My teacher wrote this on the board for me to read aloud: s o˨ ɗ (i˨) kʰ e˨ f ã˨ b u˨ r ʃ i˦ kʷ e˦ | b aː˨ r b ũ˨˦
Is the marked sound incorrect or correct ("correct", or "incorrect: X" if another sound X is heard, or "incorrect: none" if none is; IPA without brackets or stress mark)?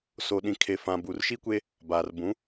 incorrect: ĩ˨